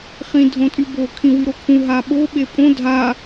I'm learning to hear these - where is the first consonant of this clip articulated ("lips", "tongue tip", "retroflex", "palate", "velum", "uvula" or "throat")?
uvula